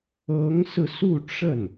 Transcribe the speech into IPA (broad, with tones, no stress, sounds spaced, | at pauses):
ɤ˧˥ ŋ s ɹ̩˧ s u˥˧ ʈ͡ʂ ə˥˩ n